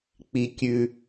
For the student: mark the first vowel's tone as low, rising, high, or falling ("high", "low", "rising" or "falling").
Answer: low